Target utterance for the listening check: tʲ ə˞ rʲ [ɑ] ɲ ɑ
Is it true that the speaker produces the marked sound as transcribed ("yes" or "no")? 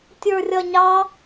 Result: no